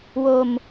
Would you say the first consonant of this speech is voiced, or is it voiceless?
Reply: voiced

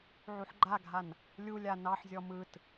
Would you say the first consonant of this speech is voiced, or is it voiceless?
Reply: voiced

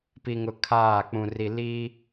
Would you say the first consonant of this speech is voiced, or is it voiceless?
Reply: voiceless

